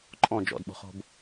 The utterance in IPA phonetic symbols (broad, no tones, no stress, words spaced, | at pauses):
ǃʼɔ̃ d͡ʒɔ̰dɓo̤χo̤b